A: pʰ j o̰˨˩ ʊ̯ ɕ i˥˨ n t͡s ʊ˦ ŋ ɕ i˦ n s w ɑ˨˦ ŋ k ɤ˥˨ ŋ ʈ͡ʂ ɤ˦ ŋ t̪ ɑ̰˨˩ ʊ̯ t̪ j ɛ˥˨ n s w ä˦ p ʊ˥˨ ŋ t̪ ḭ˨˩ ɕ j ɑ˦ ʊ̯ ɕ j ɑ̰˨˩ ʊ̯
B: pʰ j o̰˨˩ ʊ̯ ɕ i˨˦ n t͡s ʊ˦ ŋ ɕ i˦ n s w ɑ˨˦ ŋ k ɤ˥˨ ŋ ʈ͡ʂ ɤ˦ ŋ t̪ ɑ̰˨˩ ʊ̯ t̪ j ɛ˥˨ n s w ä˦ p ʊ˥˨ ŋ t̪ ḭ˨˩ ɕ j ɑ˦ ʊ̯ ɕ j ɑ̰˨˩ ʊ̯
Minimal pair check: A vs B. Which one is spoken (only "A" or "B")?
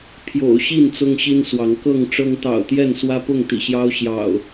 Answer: A